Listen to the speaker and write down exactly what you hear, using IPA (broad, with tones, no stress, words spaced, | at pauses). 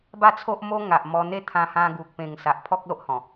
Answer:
ba˥˧t͡sʰo˦ʔmo˦ ŋa˨ʔmɔ˧ n̪e˦t̪ʰã˧ hã˧ɡu˨k̚ pẽ˨˩ŋ sa˨ʔpʰɔ˦k̚lo˦ʔhɔ̃˨˩